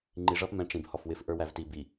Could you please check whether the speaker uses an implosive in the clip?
no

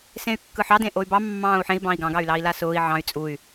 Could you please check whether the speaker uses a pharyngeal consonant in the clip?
yes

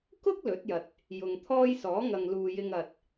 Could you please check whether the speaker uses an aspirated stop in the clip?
yes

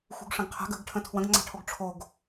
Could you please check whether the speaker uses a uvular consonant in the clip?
yes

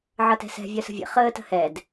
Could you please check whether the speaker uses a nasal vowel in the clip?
no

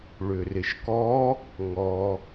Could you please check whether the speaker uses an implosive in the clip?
no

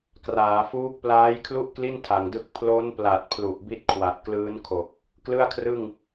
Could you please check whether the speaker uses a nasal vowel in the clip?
no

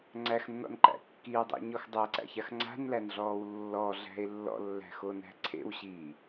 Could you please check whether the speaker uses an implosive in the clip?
no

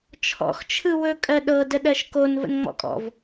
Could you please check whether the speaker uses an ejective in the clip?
yes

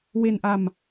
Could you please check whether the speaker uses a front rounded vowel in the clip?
no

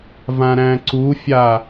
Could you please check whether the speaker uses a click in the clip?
yes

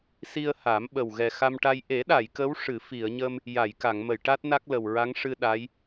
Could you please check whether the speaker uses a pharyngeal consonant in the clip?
no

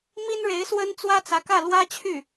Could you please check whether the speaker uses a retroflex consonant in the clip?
yes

